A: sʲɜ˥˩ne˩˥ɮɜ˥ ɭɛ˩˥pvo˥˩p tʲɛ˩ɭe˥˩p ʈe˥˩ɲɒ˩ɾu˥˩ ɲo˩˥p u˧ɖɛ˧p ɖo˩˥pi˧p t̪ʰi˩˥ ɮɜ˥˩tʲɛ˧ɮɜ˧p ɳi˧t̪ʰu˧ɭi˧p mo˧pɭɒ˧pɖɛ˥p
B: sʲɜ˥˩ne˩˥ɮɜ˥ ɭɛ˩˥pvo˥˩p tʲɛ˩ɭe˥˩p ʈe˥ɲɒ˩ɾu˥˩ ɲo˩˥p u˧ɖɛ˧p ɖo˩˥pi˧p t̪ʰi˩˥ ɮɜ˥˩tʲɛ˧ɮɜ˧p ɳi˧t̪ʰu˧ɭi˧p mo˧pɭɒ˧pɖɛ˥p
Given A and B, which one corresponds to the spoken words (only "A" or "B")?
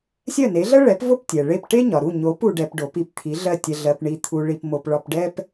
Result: B